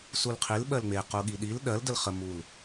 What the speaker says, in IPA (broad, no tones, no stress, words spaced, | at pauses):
sulqʰil ɓɜlŋ͡me quɠiɗil ɗɜl dəlχə mul